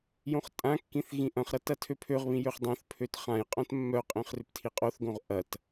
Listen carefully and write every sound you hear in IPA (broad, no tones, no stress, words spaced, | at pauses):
jõχtʼãkːĩθ ɣĩʔɐ̃χɾɐ tɐtʰøpʰøʁβĩ jøχdˤœ̃θpʰøt χãjqʼœ̃t mːœqʼĩχ rʏptʰiqʼoθɡõʁ ʔɐt